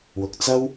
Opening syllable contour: low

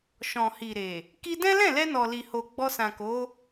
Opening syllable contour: low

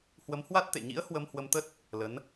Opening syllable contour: rising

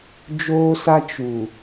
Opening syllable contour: high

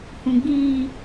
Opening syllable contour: low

